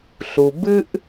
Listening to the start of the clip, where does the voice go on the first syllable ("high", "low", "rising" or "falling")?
low